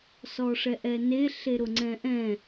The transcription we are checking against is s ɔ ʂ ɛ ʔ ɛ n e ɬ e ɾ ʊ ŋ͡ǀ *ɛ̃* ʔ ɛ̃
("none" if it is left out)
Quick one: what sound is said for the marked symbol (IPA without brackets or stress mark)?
ɛ̃